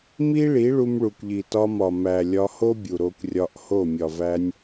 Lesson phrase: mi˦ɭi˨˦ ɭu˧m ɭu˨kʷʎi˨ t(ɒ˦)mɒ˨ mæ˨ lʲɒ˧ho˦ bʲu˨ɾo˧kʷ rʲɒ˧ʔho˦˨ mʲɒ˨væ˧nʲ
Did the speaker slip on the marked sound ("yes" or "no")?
yes